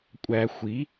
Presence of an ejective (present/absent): present